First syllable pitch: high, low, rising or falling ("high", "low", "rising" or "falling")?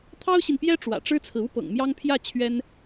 high